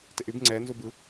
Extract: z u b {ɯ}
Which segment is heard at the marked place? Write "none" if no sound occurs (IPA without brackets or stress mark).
ɯ